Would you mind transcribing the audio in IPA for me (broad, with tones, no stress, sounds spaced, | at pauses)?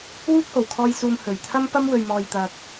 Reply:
w uː˥ k̚ h o˨˩ w kʰ ɔː˧ j s uː˨ m h ɵ˨˩ ɥ t̪ʰ ɐ˥ m p ɐ˥ m w ɵ˨ ɥ m ɔː˨ j t̪ ɐ˨ k̚